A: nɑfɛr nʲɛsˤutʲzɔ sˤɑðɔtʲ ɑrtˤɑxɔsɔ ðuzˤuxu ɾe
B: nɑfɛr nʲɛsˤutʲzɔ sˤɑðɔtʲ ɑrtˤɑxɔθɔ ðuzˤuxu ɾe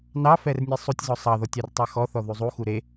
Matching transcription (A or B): B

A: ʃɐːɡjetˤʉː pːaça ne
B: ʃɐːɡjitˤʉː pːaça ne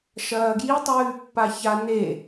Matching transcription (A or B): B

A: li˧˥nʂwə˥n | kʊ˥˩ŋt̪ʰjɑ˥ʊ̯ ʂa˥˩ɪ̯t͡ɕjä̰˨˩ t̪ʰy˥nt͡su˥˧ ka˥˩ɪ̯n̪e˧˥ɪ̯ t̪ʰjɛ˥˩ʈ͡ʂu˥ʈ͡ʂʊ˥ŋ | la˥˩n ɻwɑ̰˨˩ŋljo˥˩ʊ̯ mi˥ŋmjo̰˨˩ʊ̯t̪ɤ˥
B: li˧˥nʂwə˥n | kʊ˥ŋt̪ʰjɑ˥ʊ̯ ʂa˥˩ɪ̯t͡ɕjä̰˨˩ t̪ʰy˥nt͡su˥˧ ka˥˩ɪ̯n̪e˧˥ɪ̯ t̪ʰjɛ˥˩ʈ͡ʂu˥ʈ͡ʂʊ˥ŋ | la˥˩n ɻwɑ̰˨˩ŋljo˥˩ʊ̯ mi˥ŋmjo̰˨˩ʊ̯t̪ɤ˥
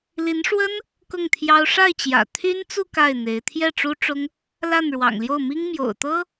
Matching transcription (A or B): A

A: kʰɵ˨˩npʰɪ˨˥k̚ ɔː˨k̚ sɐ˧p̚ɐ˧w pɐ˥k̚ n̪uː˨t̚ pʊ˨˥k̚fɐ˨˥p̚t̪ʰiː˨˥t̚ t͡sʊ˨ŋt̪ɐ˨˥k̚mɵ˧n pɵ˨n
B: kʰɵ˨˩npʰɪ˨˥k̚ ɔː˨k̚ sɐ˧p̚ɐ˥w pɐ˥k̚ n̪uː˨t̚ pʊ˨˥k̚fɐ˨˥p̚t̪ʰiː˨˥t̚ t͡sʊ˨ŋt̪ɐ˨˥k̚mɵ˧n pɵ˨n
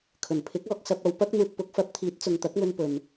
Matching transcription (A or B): A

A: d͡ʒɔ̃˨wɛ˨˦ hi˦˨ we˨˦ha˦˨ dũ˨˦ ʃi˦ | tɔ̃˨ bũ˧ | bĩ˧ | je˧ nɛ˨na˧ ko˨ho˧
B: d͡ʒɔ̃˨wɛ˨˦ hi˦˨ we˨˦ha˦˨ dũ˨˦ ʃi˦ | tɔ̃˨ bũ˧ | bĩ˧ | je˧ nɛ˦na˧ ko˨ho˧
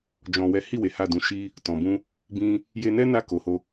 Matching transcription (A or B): B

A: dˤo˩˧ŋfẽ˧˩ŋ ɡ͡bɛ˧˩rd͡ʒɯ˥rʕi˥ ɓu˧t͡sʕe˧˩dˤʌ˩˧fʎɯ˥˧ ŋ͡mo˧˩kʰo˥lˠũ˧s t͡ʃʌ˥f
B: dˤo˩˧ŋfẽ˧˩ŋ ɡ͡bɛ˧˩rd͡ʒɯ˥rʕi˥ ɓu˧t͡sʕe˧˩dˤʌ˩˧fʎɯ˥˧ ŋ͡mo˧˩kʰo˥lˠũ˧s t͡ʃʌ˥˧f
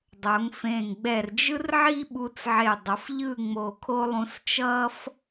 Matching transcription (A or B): A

